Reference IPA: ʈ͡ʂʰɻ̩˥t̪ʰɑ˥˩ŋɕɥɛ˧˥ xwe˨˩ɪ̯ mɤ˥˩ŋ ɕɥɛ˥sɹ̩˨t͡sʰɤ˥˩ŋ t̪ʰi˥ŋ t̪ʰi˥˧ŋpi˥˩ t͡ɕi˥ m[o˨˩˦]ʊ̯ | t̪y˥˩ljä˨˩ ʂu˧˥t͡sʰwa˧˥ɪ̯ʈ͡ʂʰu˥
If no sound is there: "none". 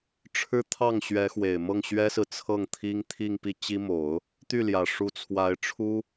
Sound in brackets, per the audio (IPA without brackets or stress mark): o˨˩˦